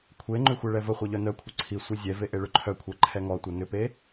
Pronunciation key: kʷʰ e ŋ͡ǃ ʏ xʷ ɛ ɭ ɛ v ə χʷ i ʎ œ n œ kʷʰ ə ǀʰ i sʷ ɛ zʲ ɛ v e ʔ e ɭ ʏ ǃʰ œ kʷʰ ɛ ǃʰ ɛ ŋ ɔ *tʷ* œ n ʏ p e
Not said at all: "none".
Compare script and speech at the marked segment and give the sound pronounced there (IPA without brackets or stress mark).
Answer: tʷ